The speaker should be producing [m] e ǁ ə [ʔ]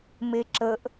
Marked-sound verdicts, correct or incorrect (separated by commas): correct, correct